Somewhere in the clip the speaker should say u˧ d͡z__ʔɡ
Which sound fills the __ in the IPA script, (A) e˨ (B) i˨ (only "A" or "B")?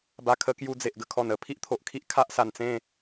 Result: A